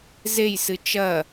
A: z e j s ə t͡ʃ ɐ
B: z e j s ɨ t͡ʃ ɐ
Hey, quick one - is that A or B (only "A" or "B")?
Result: B